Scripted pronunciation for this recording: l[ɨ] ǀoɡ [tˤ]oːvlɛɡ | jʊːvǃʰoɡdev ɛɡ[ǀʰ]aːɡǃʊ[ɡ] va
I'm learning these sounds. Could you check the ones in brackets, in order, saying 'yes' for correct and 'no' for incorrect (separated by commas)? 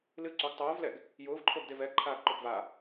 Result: yes, yes, no, yes